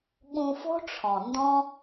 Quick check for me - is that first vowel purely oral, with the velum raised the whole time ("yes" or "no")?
no